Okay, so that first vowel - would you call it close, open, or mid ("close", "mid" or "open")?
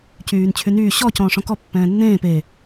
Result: close